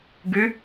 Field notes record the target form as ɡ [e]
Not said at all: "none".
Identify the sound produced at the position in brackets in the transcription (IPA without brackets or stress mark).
y